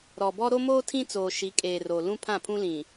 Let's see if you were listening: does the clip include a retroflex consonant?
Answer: no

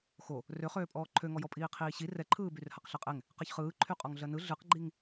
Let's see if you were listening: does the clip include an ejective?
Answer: yes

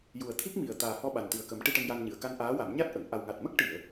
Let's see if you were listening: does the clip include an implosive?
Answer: yes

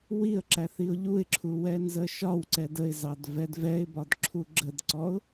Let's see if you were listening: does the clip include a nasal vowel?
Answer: no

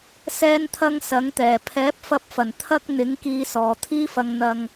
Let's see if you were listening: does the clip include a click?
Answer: no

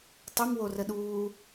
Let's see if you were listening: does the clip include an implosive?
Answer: yes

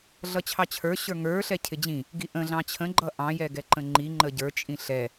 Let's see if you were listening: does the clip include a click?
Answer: yes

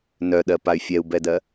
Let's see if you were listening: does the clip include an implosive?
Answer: yes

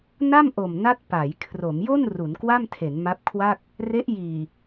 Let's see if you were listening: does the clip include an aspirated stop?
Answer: yes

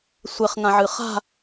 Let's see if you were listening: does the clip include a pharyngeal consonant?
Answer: yes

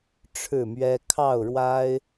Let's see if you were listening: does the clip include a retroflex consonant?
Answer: yes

